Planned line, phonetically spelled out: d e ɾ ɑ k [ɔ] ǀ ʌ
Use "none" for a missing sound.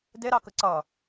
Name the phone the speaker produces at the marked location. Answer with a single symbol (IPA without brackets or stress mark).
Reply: ə